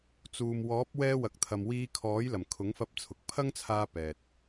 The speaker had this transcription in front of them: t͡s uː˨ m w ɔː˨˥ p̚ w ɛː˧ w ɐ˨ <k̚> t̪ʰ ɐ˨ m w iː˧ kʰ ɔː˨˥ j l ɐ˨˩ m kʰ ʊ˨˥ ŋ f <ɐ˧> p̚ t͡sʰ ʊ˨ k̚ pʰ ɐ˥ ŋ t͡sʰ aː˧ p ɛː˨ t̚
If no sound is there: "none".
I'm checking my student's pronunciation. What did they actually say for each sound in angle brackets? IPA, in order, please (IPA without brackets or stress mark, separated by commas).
k̚, ɐ˧